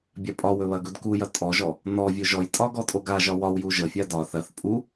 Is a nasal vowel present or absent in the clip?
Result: absent